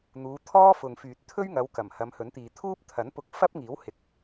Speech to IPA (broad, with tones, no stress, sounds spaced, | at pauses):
n̪ uː˨˧ t̪ʰ ɔː˥ f ʊ˨ ŋ f yː˨ t̚ t̪ʰ ɵ˥ ɥ ŋ ɐ˨˧ w k ɐ˨˩ m h ɐ˨˧ m h ɵ˨˥ n t̪ iː˨ t̪ʰ uː˥ p̚ t̪ʰ ɐ˨˥ n p ʊ˧ k̚ f ɐ˥ p̚ ŋ iː˨˥ w h ɪ˨˥ k̚